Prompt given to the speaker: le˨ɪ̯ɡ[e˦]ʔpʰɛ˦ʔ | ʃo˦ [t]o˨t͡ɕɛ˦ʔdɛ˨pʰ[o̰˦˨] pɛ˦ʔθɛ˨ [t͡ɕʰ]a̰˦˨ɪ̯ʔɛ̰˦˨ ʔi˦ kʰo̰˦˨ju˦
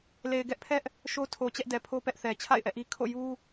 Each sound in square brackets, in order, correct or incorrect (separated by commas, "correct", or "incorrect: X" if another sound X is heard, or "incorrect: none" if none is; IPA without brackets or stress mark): incorrect: ɛ˦, incorrect: tʰ, incorrect: o˦, correct